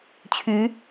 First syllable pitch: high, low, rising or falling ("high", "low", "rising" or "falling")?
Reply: rising